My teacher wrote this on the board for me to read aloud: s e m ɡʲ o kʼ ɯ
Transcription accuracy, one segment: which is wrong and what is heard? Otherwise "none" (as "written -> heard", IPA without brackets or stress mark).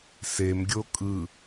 none